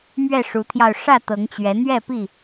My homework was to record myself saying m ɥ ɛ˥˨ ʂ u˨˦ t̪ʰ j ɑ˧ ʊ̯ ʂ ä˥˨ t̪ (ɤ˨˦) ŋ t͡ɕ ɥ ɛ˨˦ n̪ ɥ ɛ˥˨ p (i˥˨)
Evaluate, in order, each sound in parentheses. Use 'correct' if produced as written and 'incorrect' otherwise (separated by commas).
correct, correct